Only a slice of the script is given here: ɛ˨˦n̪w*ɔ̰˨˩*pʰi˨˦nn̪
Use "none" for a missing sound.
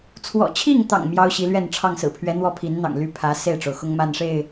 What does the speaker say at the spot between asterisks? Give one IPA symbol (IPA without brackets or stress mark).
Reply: ɔ˥˨